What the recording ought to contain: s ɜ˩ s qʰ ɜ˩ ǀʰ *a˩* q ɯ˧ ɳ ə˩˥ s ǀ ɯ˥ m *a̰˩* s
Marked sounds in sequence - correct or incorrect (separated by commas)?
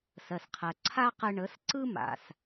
incorrect, correct